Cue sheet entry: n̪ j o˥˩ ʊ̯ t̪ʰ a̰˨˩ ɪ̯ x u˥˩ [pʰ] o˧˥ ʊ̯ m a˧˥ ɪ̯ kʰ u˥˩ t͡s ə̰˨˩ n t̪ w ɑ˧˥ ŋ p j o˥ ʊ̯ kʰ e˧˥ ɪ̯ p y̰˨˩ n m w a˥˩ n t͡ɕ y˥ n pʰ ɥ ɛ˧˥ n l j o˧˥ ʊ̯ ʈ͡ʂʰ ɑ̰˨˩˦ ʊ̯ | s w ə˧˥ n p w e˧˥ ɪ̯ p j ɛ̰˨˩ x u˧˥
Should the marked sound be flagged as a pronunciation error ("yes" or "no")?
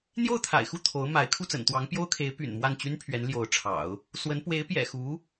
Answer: yes